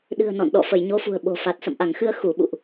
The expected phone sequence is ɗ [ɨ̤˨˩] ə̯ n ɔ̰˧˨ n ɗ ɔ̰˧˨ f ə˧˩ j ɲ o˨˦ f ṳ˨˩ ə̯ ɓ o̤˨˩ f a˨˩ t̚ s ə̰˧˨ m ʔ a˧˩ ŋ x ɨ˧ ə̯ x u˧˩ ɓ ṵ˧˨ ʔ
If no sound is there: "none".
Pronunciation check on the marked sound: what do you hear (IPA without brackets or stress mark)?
ɨ̤˨˩